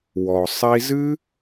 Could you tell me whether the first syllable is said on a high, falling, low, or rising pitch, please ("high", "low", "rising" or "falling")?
low